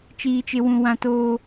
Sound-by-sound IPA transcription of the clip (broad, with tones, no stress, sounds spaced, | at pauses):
t͡ʃ iː˦ t͡ʃ ɪ˦ w ũ˦ w ã˦ t oː˦